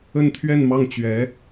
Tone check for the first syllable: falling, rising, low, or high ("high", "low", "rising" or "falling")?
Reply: falling